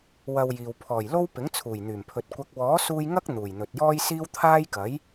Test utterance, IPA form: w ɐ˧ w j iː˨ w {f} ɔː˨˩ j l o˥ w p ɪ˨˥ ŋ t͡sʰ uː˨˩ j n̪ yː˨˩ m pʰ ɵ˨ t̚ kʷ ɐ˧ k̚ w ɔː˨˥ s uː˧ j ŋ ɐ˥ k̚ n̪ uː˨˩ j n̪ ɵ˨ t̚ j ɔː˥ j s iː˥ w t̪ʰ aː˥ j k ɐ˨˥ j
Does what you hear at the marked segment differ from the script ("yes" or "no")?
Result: yes